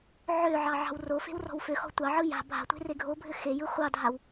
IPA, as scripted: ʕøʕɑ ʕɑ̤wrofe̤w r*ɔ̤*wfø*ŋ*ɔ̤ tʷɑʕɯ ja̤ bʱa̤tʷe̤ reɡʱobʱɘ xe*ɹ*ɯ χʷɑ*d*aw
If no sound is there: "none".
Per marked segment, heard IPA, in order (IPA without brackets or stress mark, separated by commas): ɔ̤, x, j, dʱ